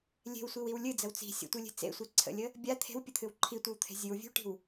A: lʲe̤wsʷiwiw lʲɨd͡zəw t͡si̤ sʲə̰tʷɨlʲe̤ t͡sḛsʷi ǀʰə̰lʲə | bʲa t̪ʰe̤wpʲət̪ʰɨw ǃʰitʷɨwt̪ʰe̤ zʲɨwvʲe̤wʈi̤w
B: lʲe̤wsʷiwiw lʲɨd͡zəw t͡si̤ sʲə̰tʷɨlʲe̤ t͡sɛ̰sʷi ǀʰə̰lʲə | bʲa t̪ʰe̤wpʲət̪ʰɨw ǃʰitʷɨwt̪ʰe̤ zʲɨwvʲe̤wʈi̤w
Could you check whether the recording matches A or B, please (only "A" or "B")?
A